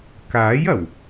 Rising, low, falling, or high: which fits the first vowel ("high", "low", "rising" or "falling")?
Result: rising